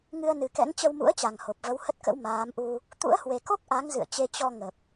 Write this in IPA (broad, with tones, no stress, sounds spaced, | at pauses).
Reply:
ŋ ɨ˧ ə̯ n ɨ˨˩ k ɛ̰˧˥ ŋ t͡ɕ ə˧ w m ṵ˧˥ ə̯ t͡ɕ a˨˩ ŋ h o˨˩ p̚ v ə˨˦ w h ə˦˥ t̚ k ə̰˧˥ w m aː˨˦ m ʔ u˧ | t̪ ṵ˧˥ ə̯ h w e˨˩ k o˦˥ k̚ ʔ a˨˦ ŋ z ɨ̰˧˨ ə̯ t͡ɕ e˧ t͡ɕ ɔ˧ ŋ ə˨˩ p̚